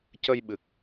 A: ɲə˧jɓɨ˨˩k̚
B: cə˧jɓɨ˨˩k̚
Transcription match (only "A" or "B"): B